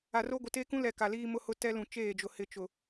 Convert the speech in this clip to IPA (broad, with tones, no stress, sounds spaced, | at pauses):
a˨ r o˦ ɡʷ ɪ˨ t e˦ k ũ˦ l ɛ˨ k a˨ l iː˦ m ʊ˦ h ʊ˦ t ɛ˦ l ũ˨ t͡ʃ eː˦˨ d͡ʒ ʊ˨ h ɪ˦˨ t͡ʃ ʊ˨